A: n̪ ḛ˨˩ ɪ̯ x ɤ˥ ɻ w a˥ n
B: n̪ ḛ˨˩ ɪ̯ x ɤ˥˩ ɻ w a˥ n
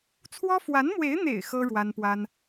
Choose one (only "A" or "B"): A